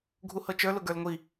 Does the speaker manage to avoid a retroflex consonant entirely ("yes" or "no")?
yes